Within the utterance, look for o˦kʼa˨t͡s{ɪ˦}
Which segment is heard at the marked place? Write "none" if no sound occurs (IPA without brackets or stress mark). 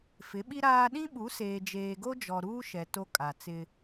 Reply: ɪ˦